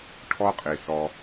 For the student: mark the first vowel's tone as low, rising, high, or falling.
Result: high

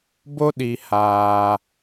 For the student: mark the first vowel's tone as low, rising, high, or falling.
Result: high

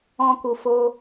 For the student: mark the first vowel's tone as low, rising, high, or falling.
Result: high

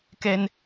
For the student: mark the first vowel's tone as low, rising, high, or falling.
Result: high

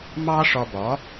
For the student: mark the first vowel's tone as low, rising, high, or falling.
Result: high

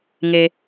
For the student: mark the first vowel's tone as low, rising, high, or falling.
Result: low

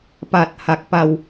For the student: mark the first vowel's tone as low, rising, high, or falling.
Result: low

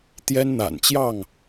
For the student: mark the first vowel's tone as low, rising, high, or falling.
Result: high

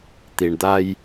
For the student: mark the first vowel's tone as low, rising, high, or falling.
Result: low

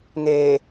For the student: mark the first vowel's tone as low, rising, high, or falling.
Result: low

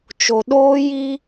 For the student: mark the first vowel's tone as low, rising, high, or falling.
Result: low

